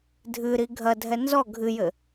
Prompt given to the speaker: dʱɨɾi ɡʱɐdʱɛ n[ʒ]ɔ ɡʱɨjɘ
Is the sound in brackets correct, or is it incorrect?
incorrect